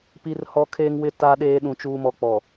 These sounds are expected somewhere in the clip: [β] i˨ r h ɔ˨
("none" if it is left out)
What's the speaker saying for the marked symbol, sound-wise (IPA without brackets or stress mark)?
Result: p